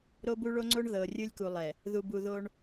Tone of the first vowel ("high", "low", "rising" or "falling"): high